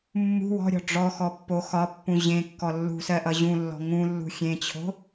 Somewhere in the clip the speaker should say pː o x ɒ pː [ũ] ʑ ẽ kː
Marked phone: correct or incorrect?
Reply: correct